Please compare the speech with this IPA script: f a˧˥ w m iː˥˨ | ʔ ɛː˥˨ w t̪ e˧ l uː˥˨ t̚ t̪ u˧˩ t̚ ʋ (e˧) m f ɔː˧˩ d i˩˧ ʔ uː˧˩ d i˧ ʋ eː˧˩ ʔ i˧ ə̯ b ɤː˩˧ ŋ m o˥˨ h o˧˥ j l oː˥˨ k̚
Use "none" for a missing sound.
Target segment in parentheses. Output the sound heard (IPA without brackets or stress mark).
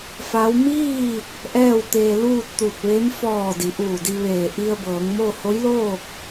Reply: e˧˥